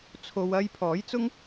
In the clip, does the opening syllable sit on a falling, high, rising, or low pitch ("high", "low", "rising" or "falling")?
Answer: low